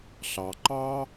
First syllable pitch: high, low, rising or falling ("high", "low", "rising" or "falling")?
low